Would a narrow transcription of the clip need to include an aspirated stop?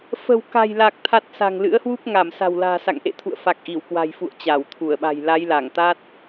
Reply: yes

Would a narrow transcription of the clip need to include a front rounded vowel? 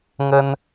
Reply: no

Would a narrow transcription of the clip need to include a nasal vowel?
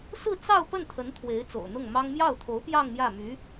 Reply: no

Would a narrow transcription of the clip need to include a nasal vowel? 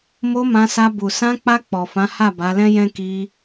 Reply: yes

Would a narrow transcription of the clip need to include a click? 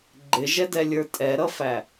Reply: yes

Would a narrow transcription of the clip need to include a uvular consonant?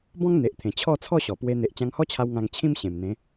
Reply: no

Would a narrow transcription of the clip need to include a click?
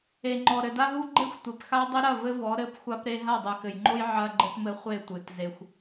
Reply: yes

